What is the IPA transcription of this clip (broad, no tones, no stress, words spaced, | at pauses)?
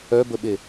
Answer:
œbəɓe